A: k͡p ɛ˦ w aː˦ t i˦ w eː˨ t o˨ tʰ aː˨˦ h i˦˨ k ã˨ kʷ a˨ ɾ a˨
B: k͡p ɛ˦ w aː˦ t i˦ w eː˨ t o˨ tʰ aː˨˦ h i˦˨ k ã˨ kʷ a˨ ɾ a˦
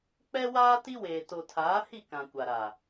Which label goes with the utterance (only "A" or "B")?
A